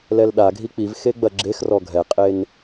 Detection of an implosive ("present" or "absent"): present